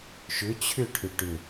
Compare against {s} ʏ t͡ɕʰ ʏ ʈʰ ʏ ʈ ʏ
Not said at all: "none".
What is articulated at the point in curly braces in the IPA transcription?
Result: ʃ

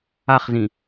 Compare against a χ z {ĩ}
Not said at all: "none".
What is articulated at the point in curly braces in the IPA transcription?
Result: ĩ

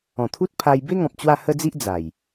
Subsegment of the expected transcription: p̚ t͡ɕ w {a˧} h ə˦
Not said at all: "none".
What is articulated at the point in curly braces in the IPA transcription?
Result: a˥˧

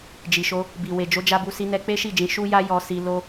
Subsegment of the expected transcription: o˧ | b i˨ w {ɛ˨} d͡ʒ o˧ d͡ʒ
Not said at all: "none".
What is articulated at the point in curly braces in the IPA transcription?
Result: e˨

